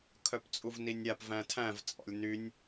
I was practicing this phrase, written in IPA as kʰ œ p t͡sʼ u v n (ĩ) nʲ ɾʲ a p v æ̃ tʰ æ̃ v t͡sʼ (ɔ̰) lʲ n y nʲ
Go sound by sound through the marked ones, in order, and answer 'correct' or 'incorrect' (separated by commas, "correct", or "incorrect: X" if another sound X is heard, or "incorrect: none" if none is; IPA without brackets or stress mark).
incorrect: i, correct